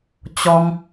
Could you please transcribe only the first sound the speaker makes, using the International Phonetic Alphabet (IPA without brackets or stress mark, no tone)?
t͡ɕ